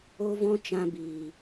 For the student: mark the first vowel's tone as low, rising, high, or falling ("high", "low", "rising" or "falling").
high